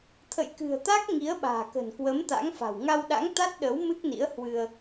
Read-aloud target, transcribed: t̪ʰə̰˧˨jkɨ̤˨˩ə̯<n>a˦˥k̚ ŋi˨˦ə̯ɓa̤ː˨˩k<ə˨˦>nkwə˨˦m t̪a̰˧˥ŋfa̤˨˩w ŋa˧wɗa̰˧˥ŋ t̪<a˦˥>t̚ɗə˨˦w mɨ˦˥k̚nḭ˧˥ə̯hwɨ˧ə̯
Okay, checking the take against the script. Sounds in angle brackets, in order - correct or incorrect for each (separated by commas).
incorrect, incorrect, correct